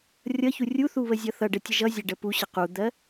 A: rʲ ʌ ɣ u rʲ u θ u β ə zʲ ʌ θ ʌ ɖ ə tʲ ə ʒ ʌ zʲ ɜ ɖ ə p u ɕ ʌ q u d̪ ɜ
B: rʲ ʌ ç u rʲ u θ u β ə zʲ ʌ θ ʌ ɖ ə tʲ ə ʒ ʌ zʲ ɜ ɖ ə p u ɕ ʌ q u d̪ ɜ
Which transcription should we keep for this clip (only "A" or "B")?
B